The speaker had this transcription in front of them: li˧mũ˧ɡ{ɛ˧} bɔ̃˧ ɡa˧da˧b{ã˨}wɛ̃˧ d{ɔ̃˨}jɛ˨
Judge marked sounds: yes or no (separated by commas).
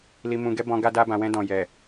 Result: no, yes, yes